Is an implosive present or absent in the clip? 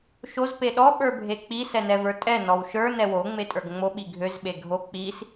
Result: present